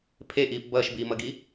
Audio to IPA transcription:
pʰ e ʔ iː p b ʌː ʃ b iː m ʌ ɡ i

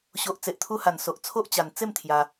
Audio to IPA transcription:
ɕ o˨ ʔ t͡s e˨ ʔ t̪ʰ u˧ h a˨˩ n s o˨ ʔ t͡sʰ o˦ ʔ t͡ɕ a˨˩ n t͡s e˥˧ m t̪ʰ j a˧

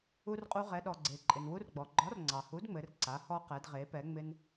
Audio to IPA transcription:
u˧ r qʼ u˧ ʁ ɛ˩˧ ɗ ɔ˩ ɡ͡ǀ e˩ ǃʼ ɪ˩ n w u˧ r ɡ͡b ɔ˩ ɡ͡ǃ ɒ˨˥ r ŋ͡ǀ ɑ˩ h u˨˥ d ŋ͡m ɘ˩˧ r ǀ a˩˧ h ɔ˧ q ɛ˩˧ d ʁ e˩˧ p ɛ˩˧ ŋ͡m ɪ˧ n

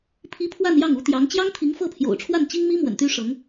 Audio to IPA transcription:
pʰ i˥ pʰ w a˥˧ n j ɑ˥˩ ŋ u˧˥ t̪ j ɑ˧˥ ŋ t͡ɕ j ɑ˥ ŋ t̪ʰ i˧˥ ŋ f ɤ˥˩ pʰ j o̰˨˩ ʊ̯ ʈ͡ʂʰ w a˥˩ n t͡ɕ i˥ ŋ m i˥ m w ə̰˨˩ n t̪ y˥ ʂ ɤ˧˥ ŋ

